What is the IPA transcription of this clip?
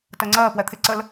t ɜ ŋ͡ǀ ɜː p w ɛ t̪ʰ ɪ ǀ ə l

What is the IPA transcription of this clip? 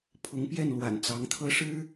pʰ ʊ˧˥ ŋ p j ɛ˥˩ n l w a̰˨˩ n t͡s ɑ˧˥ ŋ t̪ʰ ɤ˥ ʂ ɻ̩˥

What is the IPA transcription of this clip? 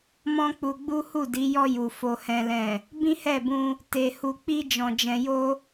m ɔ̃˦ k͡p u˧ ɡ͡b u˦ h u˦˨ d i˨˦ j ɔ˧ j u˨ f o˨ h ɛ̃˨ l ɛ̃˨ | b ĩ˦ h ɛ˦˨ b ũ˧ | t e˧ h u˧ k͡p i˦ d͡ʒ ɔ̃˧ d͡ʒ ɛ̃˧ j o˦

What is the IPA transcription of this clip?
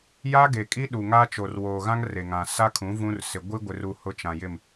j a˦ ɡ e˨ kʼ i˦ ɗ u˨ ŋ aː˦ t͡ʃ o˨ r w oː˨ ɣ ã˦ ŋ r e˨ ŋ ã˨ s a˦ kʰ ũ˨˦ v ũ˦ r s ɪ˨ ɡʷ i˦ ɡʷ ɪ˨ r u˨ h ʊ˦ t͡ʃ ã˨ j ɪ˦˨ m

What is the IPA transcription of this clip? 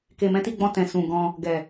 k e˨ m ɛ̃˨˦ t i˧ ɡ͡b ɔ̃˧ t ɛ̃˨ s ũ˨ ɡ ɔ̃˧ | ɡ ɛ˨

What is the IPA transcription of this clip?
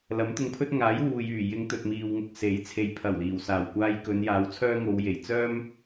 l ɐ˨˥ m t̪ ʊ˧ ŋ pʰ ɵ˥ t̚ ŋ aː˨˥ j w uː˨ j yː˨˩ j ɪ˨˧ ŋ t̪ ɵ˨ t̚ m iː˨ w ŋ ʊ˨ k̚ s e˨˥ j t͡sʰ e˨ j pʰ ɐ˨˩ w l iː˨˩ w s aː˨˩ w kʷ aː˧ j k ɵ˨˧ n j aː˨˧ w t͡sʰ œː˥ ŋ o˨˧ w j e˨˩ j t͡s œː˥ m

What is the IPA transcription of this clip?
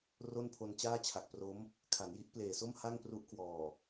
r o˥˩ n pʰ o˧ n t͡ɕ aː˥˩ t͡ɕʰ a˨˩ k̚ p r o˦˥ m | kʰ a˩˦ n j i˦˥ ʔ p l eː˨˩ s o˥˩ m h a˥˩ ŋ p r u˦˥ ʔ k w ɔː˨˩

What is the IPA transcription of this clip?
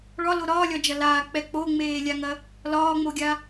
ɭ ɒ l o ɾ ɒː lʲ ɒ d͡ʒ ɐ l aː k͡p ɛ k͡p o ŋ͡m eː lʲ a ŋ ɐ | l ɒː ŋ͡m o ɡʲ a

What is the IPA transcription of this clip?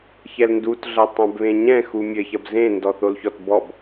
ç ɛ l n d u t ɮ ɐ tˤ ã b β ẽ ɲ ɛ̃ x u mʲ ɘ ç ɐ b z ẽ n d ɔ θ o l ç ɔ t b ɔ b

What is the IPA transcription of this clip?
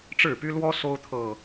ʈ͡ʂ ɻ̩˥˨ p y˦ l w ɔ˦ s o˦ ʊ̯ t̪ʰ ɤ˨˩

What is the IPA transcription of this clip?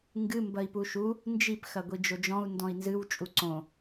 ŋ ɡ ɨ m b ɐ i̯ p u ʃ u | n d͡ʒ i p x ɐ ɡʷ i d͡ʒ o d͡ʒ ɔ̃ u̯ n d ɔ̃ i̯ n z ɨ w t͡ʃʼ u ǀ õ

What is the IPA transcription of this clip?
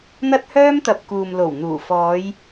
n̪ ɐ˥ t̚ h œː˥ m t̪ ɐ˨ p̚ k uː˨ m l o˨˩ w n̪ uː˨˩ f ɔː˨˧ j

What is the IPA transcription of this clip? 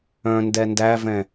œ̃ n d ɛ n d æ v ɛ̃

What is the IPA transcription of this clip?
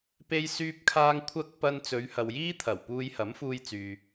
p e˥ j s yː˥ p̚ kʰ aː˥ ŋ kʷʰ ɐ˥ k̚ p ɐ˧ n t͡s ɵ˨˧ ɥ h ɐ˨ w j iː˥ t̪ʰ ɐ˨˩ w p uː˧ j h ɐ˨˥ m f uː˧ j t͡s yː˨

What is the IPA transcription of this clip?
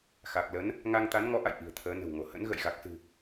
x a˨˩ k̚ l ə˨˦ n | ŋ a˧ ŋ t̪ a˨˦ n ŋ ɔ˨˦ ʔ a̰˧˨ j ʔ i̤˨˩ ə̯ t̪ʰ əː˨˦ n ə̤˨˩ w ŋ o˧˩ h ə̰˧˥ n ɣ ə̰˧˨ j ɣ a˨˩ k̚ s ɨ̤˨˩

